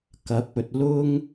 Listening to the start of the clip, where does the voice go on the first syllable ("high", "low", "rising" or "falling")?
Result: rising